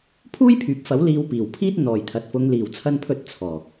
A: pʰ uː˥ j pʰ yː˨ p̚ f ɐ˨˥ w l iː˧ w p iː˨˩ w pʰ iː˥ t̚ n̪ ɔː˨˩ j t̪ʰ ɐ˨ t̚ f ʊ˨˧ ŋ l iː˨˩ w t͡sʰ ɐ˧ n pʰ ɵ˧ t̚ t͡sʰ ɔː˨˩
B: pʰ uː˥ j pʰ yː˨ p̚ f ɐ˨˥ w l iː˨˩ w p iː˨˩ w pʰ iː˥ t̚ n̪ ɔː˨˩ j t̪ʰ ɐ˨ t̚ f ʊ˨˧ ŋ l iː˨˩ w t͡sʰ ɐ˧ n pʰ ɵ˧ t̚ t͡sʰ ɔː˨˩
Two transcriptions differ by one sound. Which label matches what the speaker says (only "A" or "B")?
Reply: A